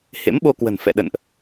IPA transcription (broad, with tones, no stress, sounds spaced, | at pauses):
h ḛ˧˥ m ɓ o˧ k w ə̤˨˩ n f ɛ̰˧˨ ɗ ə̰˧˨ n ʔ